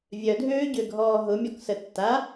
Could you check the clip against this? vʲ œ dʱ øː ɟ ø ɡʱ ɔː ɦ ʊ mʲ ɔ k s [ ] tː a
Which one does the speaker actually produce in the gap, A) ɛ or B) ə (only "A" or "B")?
B